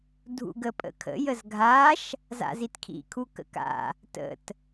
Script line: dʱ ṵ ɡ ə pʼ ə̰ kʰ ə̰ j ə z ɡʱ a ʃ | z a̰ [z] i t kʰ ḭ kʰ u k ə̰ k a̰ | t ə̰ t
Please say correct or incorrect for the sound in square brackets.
correct